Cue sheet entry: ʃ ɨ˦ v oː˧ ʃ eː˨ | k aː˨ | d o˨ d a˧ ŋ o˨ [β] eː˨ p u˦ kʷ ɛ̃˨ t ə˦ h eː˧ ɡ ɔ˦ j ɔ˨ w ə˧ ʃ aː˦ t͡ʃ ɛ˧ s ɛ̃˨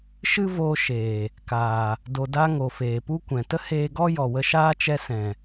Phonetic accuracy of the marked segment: incorrect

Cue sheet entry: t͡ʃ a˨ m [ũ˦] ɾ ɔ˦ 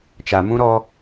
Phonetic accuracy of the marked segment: correct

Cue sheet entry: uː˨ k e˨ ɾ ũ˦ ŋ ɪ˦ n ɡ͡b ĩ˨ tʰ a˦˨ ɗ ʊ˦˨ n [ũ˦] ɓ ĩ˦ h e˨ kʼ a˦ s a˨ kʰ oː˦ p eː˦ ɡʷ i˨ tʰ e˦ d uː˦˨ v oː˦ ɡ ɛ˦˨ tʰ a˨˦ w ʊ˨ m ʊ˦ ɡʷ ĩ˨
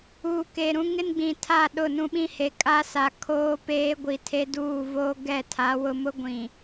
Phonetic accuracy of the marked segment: correct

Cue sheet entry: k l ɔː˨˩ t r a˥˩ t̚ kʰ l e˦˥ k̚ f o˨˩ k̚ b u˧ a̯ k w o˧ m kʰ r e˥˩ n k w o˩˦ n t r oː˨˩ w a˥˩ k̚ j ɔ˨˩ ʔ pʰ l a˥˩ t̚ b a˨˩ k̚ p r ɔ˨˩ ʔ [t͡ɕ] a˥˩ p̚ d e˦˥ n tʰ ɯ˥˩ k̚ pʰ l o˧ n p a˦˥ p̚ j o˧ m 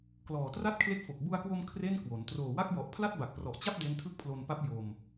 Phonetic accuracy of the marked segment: correct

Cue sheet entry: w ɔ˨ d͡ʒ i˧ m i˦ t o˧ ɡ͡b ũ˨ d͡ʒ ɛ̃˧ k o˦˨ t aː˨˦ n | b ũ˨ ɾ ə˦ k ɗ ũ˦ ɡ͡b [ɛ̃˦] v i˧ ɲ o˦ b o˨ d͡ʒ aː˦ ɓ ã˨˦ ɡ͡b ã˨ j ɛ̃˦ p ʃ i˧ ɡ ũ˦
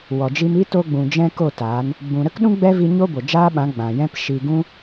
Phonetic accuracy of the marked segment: incorrect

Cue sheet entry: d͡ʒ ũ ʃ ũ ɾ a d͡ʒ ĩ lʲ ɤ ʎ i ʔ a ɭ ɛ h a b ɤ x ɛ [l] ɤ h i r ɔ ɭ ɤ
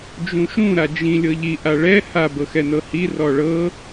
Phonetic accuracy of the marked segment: incorrect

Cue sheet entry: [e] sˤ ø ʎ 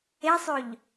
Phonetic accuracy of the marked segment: correct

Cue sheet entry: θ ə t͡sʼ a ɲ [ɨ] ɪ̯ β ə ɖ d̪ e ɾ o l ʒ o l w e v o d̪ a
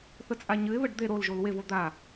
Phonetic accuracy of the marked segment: correct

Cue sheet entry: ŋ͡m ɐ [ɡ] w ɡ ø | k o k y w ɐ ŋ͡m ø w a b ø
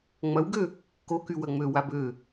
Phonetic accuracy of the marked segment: incorrect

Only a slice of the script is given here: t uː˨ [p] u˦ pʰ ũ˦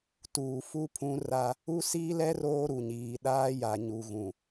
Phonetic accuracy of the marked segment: incorrect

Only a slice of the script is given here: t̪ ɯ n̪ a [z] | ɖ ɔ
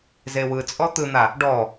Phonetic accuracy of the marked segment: incorrect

